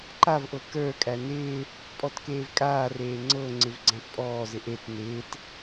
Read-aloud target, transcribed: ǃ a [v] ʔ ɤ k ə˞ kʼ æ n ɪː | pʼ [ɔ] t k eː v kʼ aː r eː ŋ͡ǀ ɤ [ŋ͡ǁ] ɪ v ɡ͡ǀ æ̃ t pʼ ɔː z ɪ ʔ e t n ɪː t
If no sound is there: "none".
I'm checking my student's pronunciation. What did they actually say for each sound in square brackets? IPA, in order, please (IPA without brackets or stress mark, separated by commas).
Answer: v, ɔ, ŋ͡ǀ